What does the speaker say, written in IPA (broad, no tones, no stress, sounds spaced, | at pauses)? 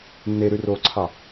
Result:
nː e ɾ ʉ r oː ǀʰ ɑ